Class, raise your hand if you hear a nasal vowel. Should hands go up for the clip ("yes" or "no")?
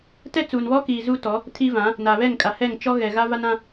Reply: yes